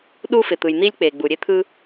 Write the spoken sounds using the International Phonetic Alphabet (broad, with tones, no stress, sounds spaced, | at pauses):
ɗ u˦ f ɪ˩ t̪ ɯ˩ j n̪ i˦ lʲ k͡p e˩ ɡ͡b u˩ ɾʲ e˦ t̪ʰ ɯ˦